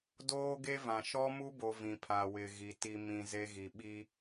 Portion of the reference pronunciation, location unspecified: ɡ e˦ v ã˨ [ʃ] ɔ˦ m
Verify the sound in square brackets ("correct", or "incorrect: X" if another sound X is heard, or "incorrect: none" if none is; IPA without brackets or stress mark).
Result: correct